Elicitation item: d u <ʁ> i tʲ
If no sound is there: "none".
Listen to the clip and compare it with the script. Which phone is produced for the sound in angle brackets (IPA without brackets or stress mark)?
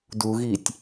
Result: ɣ